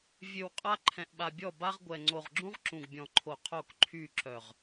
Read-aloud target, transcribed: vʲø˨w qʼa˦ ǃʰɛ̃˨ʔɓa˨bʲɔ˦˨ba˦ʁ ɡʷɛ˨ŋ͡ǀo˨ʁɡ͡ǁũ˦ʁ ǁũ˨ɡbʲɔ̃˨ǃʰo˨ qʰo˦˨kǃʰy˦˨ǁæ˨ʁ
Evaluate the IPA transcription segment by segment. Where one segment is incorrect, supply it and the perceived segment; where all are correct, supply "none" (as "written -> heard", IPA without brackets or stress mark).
æ˨ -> œ˨